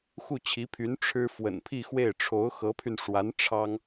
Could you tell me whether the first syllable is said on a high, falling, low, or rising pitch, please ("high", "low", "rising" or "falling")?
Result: falling